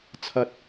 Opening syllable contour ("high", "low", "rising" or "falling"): low